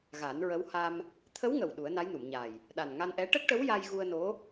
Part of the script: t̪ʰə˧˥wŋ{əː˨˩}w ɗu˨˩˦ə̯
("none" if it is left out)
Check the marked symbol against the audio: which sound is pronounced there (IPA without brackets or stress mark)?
ə˨˩